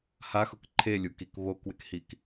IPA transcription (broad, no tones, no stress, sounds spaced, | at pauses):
h a x ʊ k ǃʰ e lʲ u k i k β o k w ɪ k h i k